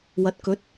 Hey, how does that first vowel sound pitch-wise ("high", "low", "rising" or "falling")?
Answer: rising